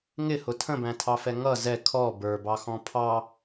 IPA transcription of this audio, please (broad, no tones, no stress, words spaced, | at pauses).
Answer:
ŋɪhʊ tʰə̃bæ̃tʰɑfɛ ŋʌ zɛ kʰɔ bə˞bɑxɔ̃ pʰɑ